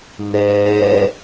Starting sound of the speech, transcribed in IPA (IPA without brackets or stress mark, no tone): n